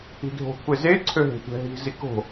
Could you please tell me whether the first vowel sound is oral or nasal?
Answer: oral